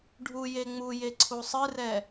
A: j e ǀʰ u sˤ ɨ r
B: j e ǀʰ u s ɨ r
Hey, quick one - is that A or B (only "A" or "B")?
A